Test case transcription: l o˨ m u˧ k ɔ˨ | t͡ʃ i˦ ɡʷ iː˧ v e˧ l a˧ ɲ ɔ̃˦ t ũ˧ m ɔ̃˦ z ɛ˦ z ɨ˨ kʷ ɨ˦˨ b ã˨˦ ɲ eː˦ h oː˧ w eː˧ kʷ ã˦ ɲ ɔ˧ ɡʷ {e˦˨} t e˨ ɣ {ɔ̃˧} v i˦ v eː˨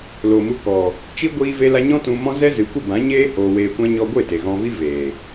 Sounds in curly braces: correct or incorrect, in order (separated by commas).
correct, correct